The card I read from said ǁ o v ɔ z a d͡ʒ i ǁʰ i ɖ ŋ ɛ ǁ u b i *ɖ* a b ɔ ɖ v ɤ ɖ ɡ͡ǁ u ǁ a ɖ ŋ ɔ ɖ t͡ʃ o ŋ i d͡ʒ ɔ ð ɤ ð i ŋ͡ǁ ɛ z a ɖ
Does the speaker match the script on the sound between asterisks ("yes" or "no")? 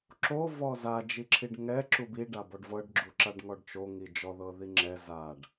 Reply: yes